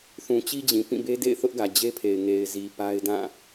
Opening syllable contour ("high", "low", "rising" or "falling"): low